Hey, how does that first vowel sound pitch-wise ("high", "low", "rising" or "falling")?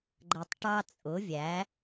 low